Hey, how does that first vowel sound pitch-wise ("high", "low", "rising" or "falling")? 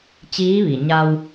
rising